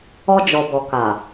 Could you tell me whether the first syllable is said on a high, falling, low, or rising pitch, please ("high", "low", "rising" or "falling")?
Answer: high